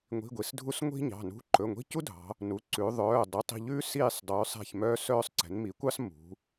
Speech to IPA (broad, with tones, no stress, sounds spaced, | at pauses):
ŋʷ i̤˧˥˧ ɡʷ i˩˧ s dʱ u˥ s ŋʷ i̤˥ ɲ ɑ̤˩˧˩ n ṳ˧˥˧ ǃ ɵ˩˧˩ ŋʷ i̤˧˥˧ c u˥ dʱ ɑ̤˩˧ | n u˩˧˩ ǀ ʉ˩˧ ðˤ œː˩˧˩ dˤ u˩˧˩ tˤ i̤˦˨ ʎ ʉː˥ s iː˦˨ sˤ dˤ ʉː˩˧ sˤ ɛ̤˦˨ ç m œː˥ s œː˥ sˤ ǀ ɛ̤˩˧ n m i˩˧ kʷ ɑ˥ s m ṳ˩˧